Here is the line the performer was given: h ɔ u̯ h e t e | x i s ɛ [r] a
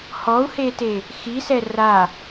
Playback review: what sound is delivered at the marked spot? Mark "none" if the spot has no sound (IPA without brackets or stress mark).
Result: r